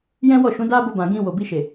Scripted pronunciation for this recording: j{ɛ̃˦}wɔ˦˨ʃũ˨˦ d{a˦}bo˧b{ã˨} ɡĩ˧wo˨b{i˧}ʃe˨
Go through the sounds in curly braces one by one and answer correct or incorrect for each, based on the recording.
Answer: correct, correct, correct, correct

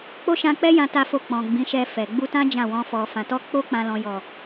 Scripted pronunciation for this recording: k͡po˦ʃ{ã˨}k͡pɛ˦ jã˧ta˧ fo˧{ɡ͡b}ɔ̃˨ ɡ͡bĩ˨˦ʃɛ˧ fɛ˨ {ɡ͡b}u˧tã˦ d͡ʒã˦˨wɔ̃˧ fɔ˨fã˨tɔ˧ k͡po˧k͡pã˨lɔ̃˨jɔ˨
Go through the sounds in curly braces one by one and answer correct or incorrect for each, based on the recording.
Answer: incorrect: ã˧, incorrect: k͡p, correct

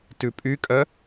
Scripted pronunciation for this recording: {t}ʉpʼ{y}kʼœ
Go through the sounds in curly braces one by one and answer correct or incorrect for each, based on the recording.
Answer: correct, correct

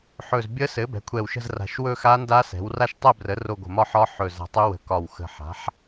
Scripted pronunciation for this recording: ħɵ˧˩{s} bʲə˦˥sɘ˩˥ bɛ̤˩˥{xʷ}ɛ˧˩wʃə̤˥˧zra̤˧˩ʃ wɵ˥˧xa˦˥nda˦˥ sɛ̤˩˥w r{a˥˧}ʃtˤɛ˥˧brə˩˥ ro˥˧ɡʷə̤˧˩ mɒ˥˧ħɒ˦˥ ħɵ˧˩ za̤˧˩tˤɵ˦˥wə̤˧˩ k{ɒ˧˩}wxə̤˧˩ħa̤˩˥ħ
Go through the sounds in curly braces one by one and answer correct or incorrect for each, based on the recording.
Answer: incorrect: z, incorrect: kʷʰ, correct, correct

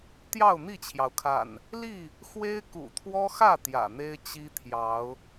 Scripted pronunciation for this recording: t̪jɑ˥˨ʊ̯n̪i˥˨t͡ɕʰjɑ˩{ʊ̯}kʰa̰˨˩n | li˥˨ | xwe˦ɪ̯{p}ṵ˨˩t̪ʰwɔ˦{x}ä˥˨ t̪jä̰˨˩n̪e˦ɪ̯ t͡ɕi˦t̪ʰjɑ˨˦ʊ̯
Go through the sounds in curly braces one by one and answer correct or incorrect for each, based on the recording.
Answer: correct, incorrect: k, correct

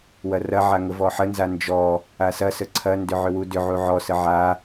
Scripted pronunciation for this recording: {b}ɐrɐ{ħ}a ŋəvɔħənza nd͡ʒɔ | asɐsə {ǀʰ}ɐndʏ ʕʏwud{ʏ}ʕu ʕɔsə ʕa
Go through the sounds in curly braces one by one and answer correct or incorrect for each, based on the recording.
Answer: incorrect: w, incorrect: ʕ, correct, correct

